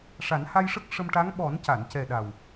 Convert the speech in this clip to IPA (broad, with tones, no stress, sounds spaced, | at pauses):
ʂ a˨˩˦ n h a˧ j ʂ ə˦˥ k̚ ʂ ə˧ m ʈ a˧˥ ŋ ɓ ɔ˨˩˦ n c a˨˩˨ n c ɛ˨˩ ɗ a˨˩ w